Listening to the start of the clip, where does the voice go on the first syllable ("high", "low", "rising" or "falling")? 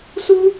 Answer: high